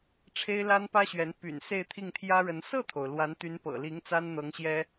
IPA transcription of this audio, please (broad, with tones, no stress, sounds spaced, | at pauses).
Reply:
ʈ͡ʂʰ e˥ ɪ̯ l a˥ n p ä˥ ɕ ɥ ɛ˧˥ n p y̰˨˩ n s e˥˧ ɪ̯ t̪ʰ i˥˩ ŋ t̪ʰ j ä˥ ɻ ə˧˥ n s ɤ˥˩ t̪ʰ o˩ ʊ̯ l w a˧˥ n t̪ y˧˥ n p ɤ̰˨˩ l i˧˥ ŋ t͡s a˥ n n̪ ɤ˧˥ ŋ ɕ j ɛ˥